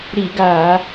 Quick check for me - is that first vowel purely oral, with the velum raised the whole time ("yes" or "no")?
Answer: yes